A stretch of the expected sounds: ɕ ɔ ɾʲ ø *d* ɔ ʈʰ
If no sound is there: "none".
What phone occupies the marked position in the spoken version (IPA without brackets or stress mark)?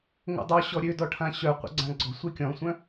d